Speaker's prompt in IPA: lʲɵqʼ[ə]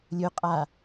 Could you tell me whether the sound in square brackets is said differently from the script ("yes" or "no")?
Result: yes